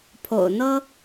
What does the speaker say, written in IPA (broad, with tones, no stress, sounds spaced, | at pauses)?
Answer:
pʰ o̰˨˩ ʊ̯ n̪ ɤ˥